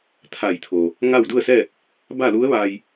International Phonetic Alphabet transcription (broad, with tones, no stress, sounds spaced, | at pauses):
t̪ʰ a˧˩ j t̪ʰ oː˩ | ŋ a˥˨ w d u˥˨ ə̯ s ɛː˥˨ k̚ | b a˥˨ l u˧˥ ə̯ ʋ aː˧ j